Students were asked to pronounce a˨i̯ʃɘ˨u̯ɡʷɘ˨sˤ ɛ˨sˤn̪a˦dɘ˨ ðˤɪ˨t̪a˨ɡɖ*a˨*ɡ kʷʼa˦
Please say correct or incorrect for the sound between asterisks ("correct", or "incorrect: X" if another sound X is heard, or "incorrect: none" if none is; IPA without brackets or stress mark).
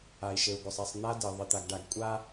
correct